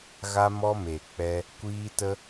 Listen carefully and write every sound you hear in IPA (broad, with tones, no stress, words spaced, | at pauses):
ɣa˧mɔ˧ me˨k͡pɛ˧ | kʷiː˧tə˧